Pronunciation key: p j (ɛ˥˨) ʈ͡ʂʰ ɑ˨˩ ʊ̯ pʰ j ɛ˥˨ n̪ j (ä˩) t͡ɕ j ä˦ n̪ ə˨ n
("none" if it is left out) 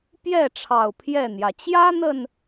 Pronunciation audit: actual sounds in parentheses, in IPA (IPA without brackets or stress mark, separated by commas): ɛ˥˨, ä˩